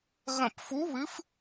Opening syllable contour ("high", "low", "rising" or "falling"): falling